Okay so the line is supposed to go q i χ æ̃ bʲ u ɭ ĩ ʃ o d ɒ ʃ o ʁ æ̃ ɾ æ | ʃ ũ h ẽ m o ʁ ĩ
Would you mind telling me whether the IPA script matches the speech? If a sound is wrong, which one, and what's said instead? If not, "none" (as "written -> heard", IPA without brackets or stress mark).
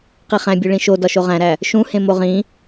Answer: none